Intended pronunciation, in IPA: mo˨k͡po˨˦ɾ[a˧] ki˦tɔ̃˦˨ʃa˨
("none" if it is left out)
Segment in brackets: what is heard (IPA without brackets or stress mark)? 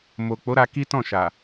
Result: a˧